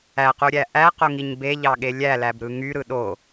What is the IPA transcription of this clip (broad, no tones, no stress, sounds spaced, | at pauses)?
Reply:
æ q u ɾʲ æ ʔ æ q o ŋ i ɲ b e ʎ ɑ ɠ e lʲ æ l æ b ɾ ɯ ŋ y ɾ ɯ ɗ o